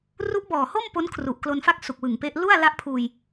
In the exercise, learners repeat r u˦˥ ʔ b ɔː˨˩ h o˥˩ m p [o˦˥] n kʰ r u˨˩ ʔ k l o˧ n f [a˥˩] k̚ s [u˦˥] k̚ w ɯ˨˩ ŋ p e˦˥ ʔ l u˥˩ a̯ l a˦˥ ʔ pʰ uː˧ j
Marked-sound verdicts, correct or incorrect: correct, correct, incorrect

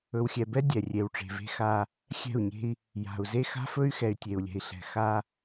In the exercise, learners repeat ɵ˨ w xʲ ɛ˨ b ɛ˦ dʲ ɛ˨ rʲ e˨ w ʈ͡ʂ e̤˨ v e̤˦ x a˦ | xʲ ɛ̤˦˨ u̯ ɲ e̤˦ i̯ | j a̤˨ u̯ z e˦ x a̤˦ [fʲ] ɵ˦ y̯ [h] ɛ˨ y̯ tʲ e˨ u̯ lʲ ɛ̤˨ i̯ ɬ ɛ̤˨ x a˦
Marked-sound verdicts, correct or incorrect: incorrect, incorrect

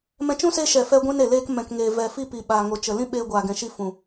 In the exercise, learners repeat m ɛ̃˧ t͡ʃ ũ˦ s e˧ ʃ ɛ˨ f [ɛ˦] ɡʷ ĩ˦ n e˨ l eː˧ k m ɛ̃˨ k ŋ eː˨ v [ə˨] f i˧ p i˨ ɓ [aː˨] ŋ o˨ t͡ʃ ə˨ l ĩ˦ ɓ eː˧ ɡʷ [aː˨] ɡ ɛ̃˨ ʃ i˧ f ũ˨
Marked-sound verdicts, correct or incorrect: correct, incorrect, correct, correct

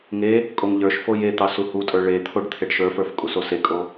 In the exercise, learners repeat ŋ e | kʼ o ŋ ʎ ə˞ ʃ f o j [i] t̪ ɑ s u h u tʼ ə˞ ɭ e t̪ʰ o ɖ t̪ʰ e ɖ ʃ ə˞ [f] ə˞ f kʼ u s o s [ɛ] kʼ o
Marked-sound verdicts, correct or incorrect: incorrect, correct, incorrect

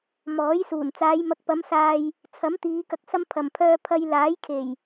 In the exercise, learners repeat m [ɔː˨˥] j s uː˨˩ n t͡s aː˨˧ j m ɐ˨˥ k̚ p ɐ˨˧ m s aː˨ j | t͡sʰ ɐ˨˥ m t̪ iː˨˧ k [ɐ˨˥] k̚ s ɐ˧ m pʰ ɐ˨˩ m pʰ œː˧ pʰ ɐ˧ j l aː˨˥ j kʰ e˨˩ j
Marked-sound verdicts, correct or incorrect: correct, incorrect

